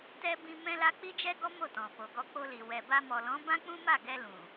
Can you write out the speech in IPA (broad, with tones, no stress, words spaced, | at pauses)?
tɛ˦ bĩ˧ mɛ̃˦la˦ k͡pi˦d͡ʒɛ˦ɡɔ˦ mo˦˨tɔ̃˨fo˨ɡɔ˧ k͡po˧li˨ wɛ˨ba˧mɔ˨lɔ̃˨˦ bã˦k͡pũ˦ma˦˨ɡɛ˧ lũ˨